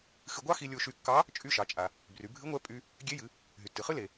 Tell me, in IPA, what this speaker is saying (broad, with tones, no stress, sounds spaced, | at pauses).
x ɨ˧ ɡʷ ɑ˥ x i˧ lʲ o˧ ʃ y˧ kː ɑ˧˥ | t͡ʃʼ y˧ ʃ ɑ˩˧ t͡ʃʼ a˩ | b r y˩˧ bʱ ɨ˧˥ ŋʷ ɛ˧˥ pʼ y˧ | ɡʲ e˧˥ j ɨ˩˧ | ɦ y˩ tː ɨ˩ χ ɨ˥ l e˩